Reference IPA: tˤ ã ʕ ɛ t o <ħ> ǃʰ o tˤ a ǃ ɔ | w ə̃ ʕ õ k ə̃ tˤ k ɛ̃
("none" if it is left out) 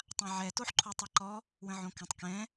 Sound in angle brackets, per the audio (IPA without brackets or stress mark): ħ